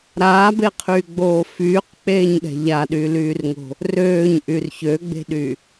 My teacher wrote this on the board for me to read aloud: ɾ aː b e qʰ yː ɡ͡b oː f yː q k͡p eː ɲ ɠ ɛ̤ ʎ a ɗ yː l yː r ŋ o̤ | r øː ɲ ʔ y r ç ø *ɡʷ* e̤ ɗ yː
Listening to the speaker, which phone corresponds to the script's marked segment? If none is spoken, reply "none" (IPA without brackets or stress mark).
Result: ɡ͡b